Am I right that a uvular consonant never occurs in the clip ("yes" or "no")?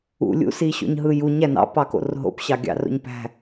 yes